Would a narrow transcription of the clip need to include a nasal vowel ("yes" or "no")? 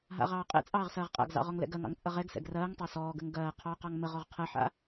no